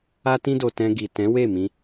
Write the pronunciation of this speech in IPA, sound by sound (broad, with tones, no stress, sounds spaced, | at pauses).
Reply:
a˦ t ĩ˦ d o˧ t ɛ̃˧ ɡ i˨ t ɛ̃˨˦ w e˦˨ m ĩ˧